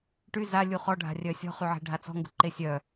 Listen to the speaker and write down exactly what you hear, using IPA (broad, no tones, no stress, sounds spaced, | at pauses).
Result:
ʈ y z a lʲ u χ ɔ ɖʱ a̤ rʲ œ sʲ ɔ̤ χ y ʕ e̤ ɖʱ a t͡s ɔ̤ ŋ ɡ ṳ ǃ e sʲ œ